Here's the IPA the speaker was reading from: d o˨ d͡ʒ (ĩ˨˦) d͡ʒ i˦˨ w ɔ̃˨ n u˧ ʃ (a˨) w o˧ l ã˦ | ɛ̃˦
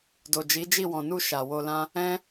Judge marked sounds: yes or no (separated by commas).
no, yes